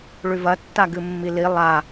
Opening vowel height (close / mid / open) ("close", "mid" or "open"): close